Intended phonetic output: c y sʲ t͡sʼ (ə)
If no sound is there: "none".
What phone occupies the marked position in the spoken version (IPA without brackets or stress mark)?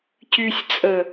ə